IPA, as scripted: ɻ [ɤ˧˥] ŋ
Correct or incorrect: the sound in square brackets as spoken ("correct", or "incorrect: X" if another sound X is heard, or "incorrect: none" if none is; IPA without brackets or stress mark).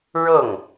incorrect: ɤ˥˩